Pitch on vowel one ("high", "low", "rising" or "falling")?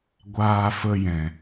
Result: high